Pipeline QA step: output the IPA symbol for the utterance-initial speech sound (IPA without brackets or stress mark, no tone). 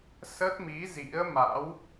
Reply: s